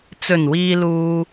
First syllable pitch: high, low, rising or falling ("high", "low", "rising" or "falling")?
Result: low